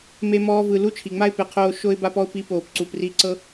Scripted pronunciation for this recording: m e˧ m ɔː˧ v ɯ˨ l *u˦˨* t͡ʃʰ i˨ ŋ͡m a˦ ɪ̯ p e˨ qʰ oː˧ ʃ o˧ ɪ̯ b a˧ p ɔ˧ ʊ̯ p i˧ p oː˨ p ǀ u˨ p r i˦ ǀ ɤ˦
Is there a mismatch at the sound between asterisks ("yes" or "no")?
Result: no